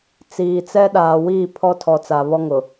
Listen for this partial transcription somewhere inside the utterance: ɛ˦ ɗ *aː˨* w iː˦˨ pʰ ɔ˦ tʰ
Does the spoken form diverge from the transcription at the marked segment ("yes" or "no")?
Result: no